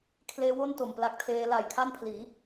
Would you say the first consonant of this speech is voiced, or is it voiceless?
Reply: voiceless